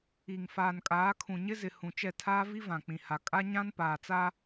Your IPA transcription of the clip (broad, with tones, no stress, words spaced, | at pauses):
i˨ŋ faː˨nkʼaː˨˦ kʰũ˨ɲɪ˦zɪ˨ hũ˨t͡ʃɛ˦˨ tʰaː˦vi˦ vã˨k͡pĩ˨ha˨ kʼa˦ɲã˦npaː˨t͡sa˦